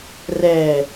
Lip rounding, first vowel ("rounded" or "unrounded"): unrounded